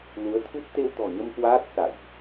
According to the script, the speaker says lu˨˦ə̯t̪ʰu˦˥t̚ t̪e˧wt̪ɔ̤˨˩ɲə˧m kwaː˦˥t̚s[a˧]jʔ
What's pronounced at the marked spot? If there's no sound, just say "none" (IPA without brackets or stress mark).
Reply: a̰˧˨